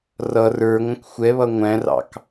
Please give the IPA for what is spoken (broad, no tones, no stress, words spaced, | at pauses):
rʌ rə˞ŋʷə̃k xʷɛβʌ ŋʷæ̃rɑ̰k